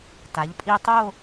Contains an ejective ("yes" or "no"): yes